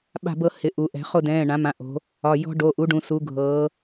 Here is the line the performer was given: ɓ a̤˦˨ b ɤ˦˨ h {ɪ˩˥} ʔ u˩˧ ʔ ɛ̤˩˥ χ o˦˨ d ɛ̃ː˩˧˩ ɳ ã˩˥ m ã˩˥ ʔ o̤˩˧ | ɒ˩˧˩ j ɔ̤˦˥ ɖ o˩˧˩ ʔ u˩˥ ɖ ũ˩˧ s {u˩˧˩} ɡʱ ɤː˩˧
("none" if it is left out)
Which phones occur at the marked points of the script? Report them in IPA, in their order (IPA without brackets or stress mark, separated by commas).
ɪ˩˥, u˩˧